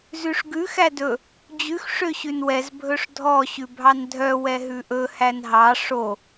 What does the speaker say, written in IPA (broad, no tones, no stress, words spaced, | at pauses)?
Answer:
zʉʂɡʉ xædɵ | d͡ʑʉx ʂøɕʉnwɛz bʱɵʂdʱɔ ɕʉbʱɑndʱœ wɛɦʉʔɵ hænɦɑ ʂo